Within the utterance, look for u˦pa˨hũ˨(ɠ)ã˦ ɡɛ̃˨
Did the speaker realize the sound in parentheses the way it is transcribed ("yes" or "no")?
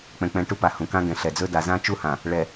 no